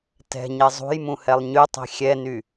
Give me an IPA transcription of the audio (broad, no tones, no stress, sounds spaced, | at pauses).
t ɛ̤ ɲ e zˤ ṳ j m ũ h ɛ lˠ ɲ y tˤ i̤ xʲ ɛ n y